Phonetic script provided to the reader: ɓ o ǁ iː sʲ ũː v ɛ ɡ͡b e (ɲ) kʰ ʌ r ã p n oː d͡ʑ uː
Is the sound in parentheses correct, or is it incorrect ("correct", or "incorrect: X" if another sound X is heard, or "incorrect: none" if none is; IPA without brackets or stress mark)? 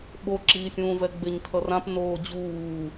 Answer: correct